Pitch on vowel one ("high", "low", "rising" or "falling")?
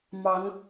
rising